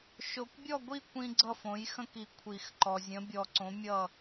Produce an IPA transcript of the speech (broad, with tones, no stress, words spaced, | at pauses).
ʃo˨kʷbʲɔ˥˨ɡʷi˥˨ kʷĩ˦ɡ͡ǀʌ˥˨ fõ˩˥jxə̃˦ki˨ kʷʰi˨˩˦xǃɔ˨ zʲə̃˩˥ bʲɔ˨˩˦ǀõ˩˥ mʲʌ˥˨